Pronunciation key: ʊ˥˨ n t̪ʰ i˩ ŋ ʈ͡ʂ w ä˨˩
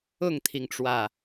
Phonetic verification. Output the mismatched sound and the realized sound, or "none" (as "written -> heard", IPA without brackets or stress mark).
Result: n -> ŋ